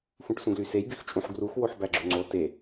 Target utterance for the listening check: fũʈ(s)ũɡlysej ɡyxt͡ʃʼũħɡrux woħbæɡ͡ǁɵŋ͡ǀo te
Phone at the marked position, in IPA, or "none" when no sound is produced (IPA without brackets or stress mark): s